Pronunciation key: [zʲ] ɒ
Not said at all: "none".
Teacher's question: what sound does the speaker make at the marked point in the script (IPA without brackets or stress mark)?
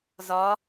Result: z